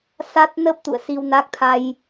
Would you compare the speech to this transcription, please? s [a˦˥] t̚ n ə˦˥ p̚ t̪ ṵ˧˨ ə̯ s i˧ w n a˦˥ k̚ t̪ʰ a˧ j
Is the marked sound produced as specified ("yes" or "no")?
yes